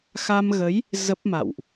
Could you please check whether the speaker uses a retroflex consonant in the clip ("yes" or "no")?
no